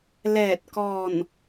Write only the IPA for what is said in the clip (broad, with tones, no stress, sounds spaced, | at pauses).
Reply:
l ɛː˧˩ t̚ k ɔː˧˩ n